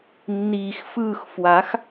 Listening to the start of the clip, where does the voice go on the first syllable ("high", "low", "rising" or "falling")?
low